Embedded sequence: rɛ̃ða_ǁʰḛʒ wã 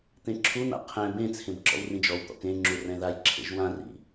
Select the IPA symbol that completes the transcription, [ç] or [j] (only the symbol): j